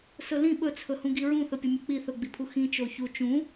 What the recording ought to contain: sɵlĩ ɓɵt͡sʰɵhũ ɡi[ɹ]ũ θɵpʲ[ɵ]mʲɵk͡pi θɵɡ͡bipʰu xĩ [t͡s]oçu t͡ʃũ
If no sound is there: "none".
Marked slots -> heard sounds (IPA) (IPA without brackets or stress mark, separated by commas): ɹ, ɵ, t͡ʃ